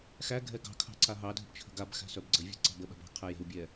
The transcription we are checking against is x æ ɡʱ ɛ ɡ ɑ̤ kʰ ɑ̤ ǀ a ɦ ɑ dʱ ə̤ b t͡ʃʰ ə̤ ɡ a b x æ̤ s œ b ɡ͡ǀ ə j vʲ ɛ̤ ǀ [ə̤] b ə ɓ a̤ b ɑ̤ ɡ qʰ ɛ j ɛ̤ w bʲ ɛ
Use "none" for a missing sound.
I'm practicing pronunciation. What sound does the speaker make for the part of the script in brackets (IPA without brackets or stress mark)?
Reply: ɑ̤